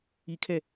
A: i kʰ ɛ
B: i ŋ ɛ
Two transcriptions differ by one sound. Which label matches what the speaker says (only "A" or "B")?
A